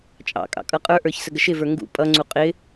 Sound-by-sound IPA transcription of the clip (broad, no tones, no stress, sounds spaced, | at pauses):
t͡ʃʼ ɑ̰ kʼ ɑ̰ kʼ ʌ qʼ ə˞ ʔ ə˞ ç s ə ɡ ə ʃ ɪ v ə˞ ŋ ɡ ṵ pʼ ʌ ŋ͡ǀ u qʼ ɪ